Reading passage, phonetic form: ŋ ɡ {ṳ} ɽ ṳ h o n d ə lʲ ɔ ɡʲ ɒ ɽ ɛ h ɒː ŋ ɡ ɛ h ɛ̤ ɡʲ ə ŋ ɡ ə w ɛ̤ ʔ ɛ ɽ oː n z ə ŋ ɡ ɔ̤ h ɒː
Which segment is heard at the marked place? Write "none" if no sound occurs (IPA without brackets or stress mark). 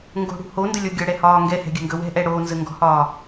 o̤